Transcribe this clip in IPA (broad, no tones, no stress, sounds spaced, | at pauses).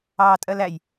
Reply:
ɑː tʼ ɜ l æ j